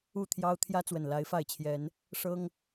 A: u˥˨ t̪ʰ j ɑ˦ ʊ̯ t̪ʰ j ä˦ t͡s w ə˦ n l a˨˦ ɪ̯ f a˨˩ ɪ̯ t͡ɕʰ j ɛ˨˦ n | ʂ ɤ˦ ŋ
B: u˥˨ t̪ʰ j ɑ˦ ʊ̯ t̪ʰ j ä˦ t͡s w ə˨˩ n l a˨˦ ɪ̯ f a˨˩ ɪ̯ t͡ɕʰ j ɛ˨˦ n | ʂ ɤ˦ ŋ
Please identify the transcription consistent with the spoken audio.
B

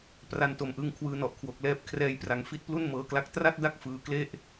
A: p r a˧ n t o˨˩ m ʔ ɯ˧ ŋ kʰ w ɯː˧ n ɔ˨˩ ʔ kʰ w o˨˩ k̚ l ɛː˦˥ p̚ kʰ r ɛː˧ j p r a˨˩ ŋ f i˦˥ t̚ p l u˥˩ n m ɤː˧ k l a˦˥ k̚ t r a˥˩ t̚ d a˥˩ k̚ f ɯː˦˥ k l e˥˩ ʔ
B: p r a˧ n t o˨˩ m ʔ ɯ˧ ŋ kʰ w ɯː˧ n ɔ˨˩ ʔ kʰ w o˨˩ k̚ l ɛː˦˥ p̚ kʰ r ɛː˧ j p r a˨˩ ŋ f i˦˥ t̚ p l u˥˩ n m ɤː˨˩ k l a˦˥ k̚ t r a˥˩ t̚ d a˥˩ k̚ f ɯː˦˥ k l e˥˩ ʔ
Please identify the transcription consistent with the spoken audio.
A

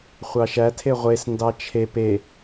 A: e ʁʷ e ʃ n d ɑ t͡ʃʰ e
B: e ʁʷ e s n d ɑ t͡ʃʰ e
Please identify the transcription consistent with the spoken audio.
B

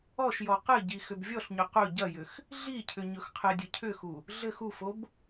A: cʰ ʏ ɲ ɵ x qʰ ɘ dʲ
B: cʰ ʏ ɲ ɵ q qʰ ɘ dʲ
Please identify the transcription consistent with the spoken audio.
A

